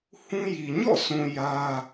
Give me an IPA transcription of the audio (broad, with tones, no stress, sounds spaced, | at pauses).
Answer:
h ũ˦ j i˨ ɲ ɔ̰˦˨ sʰ ũ˨ j ä˦